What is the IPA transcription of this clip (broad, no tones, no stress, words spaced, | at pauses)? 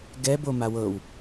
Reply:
ɡɛ bomawɤw